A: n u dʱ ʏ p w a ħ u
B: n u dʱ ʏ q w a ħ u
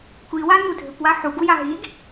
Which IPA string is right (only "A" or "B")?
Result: A